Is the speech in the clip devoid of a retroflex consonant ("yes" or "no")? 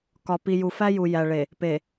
no